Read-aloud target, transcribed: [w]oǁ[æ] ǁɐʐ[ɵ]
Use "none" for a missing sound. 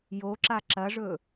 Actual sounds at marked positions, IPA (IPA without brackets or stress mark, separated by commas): j, a, ɵ